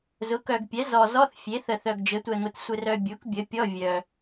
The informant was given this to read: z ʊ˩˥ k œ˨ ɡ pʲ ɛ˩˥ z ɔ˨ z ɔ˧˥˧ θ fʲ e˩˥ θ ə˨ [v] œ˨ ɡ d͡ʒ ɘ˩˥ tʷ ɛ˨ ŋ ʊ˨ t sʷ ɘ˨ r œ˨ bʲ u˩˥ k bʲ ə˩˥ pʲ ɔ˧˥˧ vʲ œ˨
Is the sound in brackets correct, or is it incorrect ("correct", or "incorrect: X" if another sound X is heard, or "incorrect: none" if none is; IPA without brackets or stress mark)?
incorrect: θ